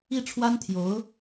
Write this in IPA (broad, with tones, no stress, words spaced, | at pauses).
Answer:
i˥˩ʈ͡ʂʰwa˥nt̪ʰjo˧˥ʊ̯